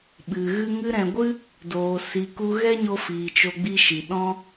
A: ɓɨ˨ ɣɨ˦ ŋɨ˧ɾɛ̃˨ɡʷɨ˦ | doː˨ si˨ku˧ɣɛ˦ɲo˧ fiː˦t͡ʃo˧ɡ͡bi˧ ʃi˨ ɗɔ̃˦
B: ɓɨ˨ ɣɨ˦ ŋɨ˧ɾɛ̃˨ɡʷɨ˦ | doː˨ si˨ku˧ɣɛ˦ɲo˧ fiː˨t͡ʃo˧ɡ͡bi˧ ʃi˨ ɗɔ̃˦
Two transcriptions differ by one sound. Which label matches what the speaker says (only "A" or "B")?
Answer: B